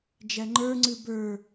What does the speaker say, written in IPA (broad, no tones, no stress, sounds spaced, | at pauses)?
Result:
d͡ʒ æ ŋ͡ǃ ə˞ ŋ͡ǀ ɨ b ə˞